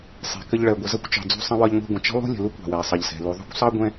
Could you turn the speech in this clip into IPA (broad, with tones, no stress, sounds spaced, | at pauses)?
sˤ ɛ̤˩ k ə˧ ʎ ɭ ɜ˩ ɡʷ ə˩ z ʌ˥ kʷ t͡ʃ ɑ̤˩ d͡z ṳ˧ sˤ ə̃˧ w ɒ˧ ʎ ŋʷ ɛ̤˧ ɡʷ ə̃˩ t͡ʃ ə̤˥ lˠ ṳ˥ lʲ ə̤˩ l u˥ kʷ ɑ̤˩ w ɛ˩ ɐ̯ sˤ ʌ˩ ʎ s ɛ̤˩ l u˩ ðˤ ṳ˥ kʷ sˤ ɑ˥ ɡʷ ɛ̃˥